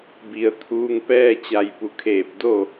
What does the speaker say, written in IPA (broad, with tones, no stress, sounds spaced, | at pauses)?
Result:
b i˩ ə̯ t̪ʰ uː˧ ŋ p ɛː˥˨ t͡ɕ a˧˩ j p u˩ kʰ eː˧˩ p̚ d o˥˨